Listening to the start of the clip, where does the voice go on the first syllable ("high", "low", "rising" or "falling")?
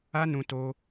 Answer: high